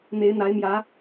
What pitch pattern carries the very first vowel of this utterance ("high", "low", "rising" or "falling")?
rising